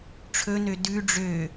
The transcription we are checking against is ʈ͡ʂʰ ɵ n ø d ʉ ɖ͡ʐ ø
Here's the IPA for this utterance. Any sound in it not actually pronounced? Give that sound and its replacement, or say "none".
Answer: none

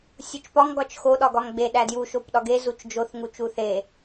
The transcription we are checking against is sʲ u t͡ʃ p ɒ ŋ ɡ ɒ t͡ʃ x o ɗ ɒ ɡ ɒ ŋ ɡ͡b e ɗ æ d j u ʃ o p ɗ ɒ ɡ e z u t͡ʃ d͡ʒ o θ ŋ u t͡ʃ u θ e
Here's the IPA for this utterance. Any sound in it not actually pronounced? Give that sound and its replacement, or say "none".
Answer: none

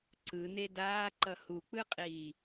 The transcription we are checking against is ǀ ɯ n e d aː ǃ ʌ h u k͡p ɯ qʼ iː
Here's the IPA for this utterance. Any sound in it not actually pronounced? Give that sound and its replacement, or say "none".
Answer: none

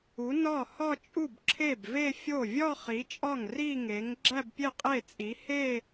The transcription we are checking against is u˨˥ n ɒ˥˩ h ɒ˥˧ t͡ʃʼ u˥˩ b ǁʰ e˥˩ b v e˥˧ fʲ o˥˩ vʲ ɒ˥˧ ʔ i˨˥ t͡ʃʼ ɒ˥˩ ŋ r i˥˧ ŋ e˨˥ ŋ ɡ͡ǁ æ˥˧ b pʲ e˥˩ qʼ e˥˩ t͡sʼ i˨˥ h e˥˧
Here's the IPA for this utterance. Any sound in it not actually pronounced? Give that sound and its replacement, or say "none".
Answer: ʔ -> χ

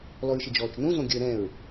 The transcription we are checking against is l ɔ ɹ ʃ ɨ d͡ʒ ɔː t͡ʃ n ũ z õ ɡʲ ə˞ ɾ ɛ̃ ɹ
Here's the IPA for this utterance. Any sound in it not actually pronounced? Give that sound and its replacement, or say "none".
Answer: none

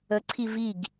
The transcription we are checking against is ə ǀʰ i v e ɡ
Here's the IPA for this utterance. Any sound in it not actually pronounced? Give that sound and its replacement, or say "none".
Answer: e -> i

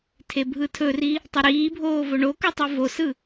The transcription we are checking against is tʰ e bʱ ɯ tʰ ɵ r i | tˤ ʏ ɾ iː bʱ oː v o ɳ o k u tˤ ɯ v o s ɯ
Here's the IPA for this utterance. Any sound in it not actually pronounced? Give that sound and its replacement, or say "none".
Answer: none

